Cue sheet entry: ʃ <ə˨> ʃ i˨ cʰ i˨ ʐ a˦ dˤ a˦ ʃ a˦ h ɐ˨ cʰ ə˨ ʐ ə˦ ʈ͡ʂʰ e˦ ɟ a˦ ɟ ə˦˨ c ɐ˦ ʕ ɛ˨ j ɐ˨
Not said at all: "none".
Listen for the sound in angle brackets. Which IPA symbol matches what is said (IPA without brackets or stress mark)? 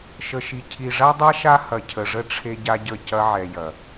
ə˨